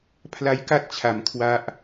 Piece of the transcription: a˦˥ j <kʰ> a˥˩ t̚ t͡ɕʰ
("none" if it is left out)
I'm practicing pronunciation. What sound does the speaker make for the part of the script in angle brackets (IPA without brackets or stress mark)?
k